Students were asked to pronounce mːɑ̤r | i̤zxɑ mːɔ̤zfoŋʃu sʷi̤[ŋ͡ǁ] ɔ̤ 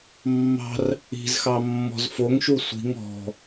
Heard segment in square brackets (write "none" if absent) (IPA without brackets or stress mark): ŋ